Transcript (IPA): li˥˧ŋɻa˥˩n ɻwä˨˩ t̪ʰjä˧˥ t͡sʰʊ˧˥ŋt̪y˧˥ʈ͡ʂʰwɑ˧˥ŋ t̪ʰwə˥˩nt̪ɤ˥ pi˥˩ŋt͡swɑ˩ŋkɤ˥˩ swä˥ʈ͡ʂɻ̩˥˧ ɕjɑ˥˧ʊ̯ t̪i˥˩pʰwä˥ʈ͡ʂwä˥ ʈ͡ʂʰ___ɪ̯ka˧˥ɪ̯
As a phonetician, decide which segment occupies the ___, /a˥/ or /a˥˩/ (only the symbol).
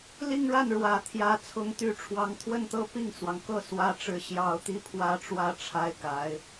a˥